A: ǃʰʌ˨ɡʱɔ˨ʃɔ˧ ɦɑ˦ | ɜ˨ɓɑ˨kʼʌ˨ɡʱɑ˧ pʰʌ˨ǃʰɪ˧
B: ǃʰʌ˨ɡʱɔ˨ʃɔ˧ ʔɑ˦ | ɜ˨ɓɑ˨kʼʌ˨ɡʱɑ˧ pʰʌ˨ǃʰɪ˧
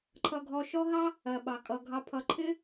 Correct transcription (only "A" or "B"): A